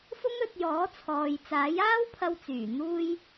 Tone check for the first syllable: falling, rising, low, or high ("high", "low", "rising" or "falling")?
high